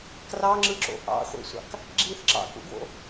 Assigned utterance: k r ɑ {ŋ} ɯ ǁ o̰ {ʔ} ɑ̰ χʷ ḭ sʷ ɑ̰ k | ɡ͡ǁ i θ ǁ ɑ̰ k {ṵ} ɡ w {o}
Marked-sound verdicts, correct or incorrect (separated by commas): incorrect, correct, correct, incorrect